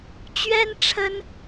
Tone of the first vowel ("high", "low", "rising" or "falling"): high